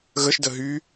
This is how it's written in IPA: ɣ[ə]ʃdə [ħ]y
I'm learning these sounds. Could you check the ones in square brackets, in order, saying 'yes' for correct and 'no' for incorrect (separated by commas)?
yes, no